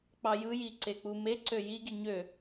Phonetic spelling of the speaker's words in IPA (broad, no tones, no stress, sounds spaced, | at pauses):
k͡p ɑ j ɯ j i ǀ e k͡p u m e ǀ ø j i ɡ i ɲ ø